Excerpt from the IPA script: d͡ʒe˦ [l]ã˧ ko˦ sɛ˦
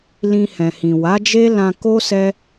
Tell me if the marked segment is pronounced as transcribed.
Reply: yes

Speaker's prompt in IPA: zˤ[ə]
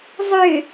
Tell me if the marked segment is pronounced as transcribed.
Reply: no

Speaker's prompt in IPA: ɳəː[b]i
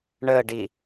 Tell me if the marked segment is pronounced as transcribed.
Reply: no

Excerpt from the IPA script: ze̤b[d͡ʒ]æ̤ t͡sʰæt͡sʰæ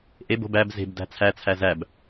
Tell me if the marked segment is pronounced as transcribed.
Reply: no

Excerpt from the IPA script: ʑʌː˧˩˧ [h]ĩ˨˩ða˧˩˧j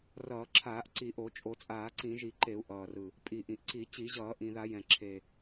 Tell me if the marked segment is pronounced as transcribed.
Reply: no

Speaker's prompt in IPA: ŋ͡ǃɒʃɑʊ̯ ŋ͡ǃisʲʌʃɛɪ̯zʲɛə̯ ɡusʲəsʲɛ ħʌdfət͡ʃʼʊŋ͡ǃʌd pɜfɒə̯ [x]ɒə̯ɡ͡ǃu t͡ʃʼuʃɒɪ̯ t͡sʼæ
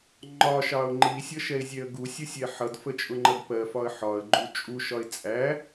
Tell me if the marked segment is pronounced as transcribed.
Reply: no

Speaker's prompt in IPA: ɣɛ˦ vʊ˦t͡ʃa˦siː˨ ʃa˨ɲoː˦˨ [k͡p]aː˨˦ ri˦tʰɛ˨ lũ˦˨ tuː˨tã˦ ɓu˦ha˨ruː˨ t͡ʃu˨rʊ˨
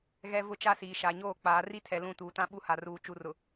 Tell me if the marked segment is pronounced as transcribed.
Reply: yes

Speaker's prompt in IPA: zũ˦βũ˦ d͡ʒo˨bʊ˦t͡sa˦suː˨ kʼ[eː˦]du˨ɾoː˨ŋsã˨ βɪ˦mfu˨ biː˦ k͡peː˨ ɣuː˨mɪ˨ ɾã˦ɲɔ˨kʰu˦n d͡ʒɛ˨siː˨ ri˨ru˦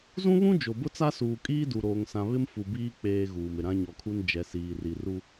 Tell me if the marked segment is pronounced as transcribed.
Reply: no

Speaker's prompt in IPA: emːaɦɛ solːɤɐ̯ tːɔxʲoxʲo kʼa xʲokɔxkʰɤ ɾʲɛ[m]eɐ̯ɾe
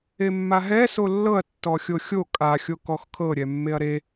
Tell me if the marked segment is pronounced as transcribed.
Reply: no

